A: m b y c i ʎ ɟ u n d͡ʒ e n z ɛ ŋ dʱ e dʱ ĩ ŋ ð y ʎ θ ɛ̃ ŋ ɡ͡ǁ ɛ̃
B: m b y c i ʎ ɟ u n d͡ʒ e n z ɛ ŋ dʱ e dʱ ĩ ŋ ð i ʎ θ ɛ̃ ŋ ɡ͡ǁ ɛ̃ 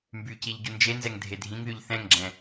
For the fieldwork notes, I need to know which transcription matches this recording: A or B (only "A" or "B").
A